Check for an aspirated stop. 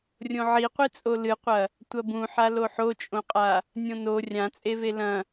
absent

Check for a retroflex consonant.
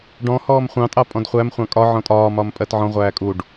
present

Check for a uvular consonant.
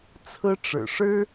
absent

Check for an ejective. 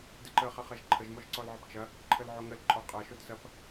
present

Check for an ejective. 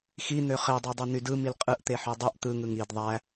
present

